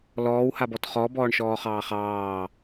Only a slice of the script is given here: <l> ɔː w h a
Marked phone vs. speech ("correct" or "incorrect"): correct